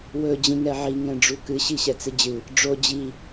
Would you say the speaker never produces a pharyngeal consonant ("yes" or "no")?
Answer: no